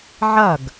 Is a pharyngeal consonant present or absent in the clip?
present